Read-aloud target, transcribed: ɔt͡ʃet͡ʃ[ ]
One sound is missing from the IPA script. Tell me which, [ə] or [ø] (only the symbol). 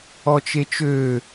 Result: ø